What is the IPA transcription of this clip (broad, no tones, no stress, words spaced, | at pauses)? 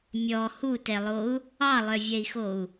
mʲɔ hutɛlˠou̯ | ɑlˠœvʲɛi̯xou̯